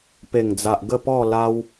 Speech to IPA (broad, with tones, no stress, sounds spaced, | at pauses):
p e˨˩ ŋ d͡z a˨ ʔ ɡ ə˥˧ p ɔ˥˧ l a˦ w